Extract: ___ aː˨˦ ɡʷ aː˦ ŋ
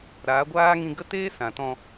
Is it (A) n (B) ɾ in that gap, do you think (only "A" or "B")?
B